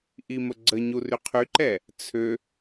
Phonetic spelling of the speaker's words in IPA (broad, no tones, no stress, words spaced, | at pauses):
ʔiməɡ͡ǀəɲu ryqʰyǃɛ | t͡sʰø